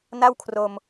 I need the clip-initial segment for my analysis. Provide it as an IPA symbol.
n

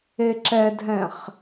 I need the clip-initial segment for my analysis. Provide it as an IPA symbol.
e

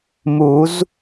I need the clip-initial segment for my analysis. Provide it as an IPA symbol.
m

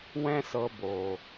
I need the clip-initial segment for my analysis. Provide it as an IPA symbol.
w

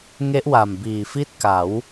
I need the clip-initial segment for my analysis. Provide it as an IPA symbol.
ŋ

